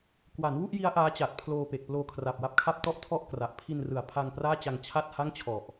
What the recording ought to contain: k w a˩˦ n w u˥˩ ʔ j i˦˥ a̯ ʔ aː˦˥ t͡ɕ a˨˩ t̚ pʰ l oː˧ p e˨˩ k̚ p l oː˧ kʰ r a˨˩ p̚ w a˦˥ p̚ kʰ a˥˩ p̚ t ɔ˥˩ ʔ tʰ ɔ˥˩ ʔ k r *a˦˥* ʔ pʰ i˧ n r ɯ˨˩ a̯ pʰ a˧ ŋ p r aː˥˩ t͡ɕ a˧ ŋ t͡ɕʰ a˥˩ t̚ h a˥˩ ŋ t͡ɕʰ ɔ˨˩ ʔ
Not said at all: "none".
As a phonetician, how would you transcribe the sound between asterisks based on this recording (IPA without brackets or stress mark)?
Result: a˨˩